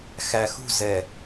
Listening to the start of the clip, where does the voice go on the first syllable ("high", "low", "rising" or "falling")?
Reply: low